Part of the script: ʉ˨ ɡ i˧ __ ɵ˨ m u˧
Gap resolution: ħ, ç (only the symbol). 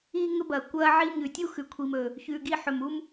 ħ